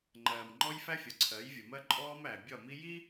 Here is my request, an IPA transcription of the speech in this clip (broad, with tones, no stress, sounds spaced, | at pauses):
ŋ͡ǃ ɜː˨ m ŋ͡ǃ ɔ˦ j f æ˦ fʲ ʌ˨ ǀʰ ɜ˨˦ j vʲ ə˨ m ɜ˦ ǃʼ ɔː˦ m æ˨ bʲ ɒ˦˨ m i˦ j i˦